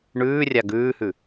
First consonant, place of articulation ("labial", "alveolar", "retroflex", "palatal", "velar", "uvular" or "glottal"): retroflex